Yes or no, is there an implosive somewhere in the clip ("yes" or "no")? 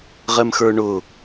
no